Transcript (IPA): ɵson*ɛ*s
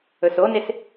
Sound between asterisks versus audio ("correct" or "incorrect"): incorrect